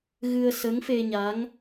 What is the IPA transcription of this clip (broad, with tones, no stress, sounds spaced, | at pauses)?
ɣ ɨ˧ ə̯ s ə˧˥ ŋ f e˧ ɲ a˧˥ ŋ